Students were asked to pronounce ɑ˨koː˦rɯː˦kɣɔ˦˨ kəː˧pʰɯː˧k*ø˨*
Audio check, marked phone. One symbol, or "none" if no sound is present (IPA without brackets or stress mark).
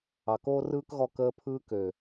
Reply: ø˨